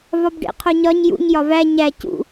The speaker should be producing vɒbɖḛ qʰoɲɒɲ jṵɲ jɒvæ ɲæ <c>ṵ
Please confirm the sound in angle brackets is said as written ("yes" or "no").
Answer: yes